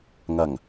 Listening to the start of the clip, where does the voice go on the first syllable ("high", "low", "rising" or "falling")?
low